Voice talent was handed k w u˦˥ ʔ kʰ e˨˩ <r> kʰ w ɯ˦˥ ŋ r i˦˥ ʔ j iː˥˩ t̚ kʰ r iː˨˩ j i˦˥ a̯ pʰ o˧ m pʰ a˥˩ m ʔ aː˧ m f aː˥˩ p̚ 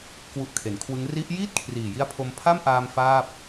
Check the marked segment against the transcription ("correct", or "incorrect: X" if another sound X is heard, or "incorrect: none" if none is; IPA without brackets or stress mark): incorrect: n